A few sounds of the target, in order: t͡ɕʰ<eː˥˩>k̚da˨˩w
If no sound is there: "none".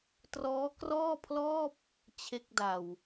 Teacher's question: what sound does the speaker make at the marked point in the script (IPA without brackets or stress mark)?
e˥˩